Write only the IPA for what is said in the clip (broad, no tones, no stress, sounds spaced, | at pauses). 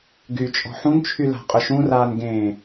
ɡ y t͡ʃʼ ɔ̤ ħ ũ n t͡ʃʰ y l a̤ qʼ ʊ ʃ ũ r aː n ɡ ẽː